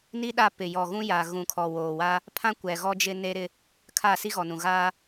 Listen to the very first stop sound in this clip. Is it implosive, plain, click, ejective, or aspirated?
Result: implosive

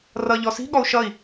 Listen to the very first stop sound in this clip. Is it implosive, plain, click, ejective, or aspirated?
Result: implosive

